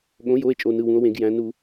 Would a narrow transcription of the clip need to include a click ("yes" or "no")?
no